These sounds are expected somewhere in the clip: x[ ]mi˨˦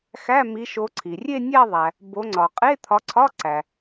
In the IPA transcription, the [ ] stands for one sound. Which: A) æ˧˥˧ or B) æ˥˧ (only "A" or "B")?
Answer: A